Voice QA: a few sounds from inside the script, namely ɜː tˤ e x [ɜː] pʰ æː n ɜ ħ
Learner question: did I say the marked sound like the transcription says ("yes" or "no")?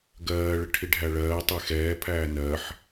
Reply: no